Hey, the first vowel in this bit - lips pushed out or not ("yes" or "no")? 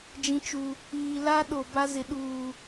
no